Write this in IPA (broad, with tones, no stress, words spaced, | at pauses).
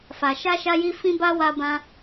fa˨ʃa˧ʃa˧ji˧ fĩ˦ ba˦ wa˧bã˧